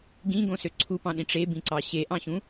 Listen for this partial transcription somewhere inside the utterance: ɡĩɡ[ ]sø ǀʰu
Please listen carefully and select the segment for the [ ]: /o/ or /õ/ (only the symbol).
õ